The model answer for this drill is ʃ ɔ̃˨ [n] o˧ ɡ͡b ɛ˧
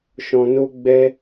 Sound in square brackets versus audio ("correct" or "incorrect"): correct